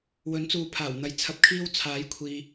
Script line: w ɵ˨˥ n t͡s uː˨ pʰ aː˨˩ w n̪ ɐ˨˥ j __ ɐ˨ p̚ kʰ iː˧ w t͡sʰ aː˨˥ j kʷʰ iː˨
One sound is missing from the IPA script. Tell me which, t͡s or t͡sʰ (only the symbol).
t͡sʰ